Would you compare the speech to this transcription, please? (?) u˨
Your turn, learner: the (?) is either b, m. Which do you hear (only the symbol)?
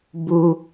b